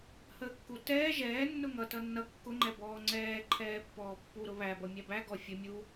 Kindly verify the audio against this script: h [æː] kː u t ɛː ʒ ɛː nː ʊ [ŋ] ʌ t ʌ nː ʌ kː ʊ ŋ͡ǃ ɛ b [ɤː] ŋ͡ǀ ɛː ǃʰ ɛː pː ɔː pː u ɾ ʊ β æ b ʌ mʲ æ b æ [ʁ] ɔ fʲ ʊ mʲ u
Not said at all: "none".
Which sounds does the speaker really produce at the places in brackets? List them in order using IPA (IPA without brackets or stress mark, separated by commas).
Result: əː, ŋ, ɔː, ɡ